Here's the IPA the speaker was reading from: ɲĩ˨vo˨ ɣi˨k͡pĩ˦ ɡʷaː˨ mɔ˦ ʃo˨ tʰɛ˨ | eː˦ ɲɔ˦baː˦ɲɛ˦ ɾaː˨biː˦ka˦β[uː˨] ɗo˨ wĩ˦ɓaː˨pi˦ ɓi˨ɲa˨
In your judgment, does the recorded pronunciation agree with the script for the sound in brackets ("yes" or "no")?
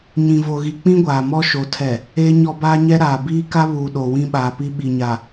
yes